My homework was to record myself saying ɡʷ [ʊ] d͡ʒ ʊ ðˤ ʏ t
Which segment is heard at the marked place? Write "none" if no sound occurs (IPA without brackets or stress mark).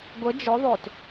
ə